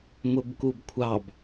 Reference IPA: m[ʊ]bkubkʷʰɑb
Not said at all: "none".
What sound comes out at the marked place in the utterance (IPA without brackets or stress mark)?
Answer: ʊ